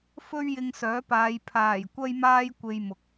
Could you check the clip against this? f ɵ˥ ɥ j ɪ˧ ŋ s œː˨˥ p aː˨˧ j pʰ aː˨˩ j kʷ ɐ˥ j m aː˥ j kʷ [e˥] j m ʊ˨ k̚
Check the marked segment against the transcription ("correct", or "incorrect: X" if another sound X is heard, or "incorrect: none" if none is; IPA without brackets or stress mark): incorrect: e˧